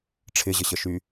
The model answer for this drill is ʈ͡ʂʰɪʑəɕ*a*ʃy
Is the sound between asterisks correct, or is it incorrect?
incorrect: ə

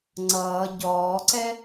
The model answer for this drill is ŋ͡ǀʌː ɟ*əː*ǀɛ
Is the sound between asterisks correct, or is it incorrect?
incorrect: ɔː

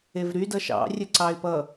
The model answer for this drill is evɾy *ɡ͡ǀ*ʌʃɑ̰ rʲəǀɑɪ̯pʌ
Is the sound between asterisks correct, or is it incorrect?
incorrect: d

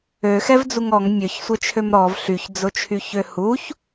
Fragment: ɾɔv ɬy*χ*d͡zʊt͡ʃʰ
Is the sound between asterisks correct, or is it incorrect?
incorrect: ç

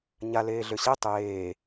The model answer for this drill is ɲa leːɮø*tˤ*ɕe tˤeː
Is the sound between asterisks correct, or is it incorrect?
incorrect: none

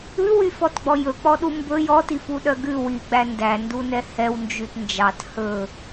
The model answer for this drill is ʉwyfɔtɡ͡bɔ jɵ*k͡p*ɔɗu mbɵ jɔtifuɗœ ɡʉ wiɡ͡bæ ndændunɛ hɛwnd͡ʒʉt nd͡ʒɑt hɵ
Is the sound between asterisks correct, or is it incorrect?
correct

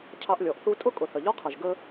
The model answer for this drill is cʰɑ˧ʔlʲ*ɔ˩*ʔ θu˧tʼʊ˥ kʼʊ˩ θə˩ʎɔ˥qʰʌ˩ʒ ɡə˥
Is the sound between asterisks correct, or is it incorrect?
correct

